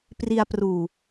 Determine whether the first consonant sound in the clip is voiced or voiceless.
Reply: voiceless